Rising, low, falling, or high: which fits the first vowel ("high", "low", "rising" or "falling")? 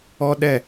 high